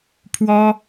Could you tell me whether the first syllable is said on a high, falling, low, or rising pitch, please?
high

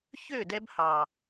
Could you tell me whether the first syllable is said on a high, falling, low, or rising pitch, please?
falling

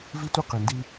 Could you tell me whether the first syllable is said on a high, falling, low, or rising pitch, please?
high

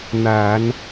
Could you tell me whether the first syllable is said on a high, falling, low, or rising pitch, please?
low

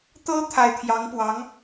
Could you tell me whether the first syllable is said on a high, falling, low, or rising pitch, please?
high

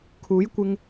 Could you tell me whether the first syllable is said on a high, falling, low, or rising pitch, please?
rising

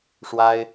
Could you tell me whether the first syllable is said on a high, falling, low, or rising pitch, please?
high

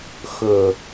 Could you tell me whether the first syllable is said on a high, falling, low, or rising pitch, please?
low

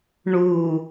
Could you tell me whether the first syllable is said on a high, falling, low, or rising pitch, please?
low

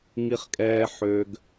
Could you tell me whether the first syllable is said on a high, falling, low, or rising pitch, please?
high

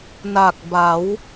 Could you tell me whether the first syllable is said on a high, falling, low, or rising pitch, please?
low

